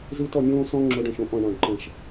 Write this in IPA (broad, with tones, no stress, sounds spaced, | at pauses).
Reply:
z i˦ t ɔ˧ nʲ õː˦ s ɔ̃˦ ŋ͡ǁ o˧ ɖ ɔ̃˨ ʃ õ˦ ʔ ɔ̃˨ ɳ ɔ̃˨ ɖ ǃ ə̃˨ ʃ